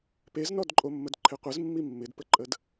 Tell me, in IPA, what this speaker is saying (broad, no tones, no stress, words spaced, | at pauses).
peznɔdǃʼomːəd ǃʰɪqʷəz mːimːɪdpəǃʼəd